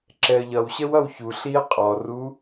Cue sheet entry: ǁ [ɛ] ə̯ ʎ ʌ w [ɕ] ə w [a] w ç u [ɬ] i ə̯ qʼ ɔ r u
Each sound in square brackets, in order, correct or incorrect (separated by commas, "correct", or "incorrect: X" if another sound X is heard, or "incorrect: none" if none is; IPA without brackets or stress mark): correct, correct, incorrect: ʌ, correct